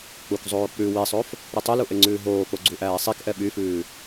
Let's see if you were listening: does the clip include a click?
yes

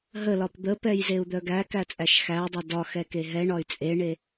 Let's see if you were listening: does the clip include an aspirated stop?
no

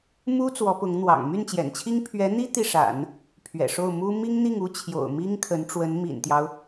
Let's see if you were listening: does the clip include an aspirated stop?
yes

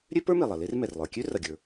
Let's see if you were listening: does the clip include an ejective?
no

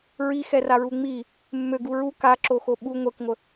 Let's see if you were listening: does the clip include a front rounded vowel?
yes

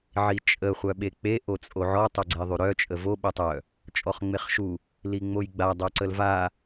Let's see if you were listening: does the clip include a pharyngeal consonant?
yes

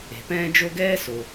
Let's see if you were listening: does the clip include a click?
no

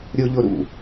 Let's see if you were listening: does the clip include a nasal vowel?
no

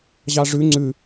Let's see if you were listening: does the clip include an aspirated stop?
no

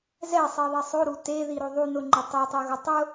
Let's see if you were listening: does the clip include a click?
yes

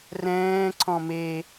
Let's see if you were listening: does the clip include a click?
yes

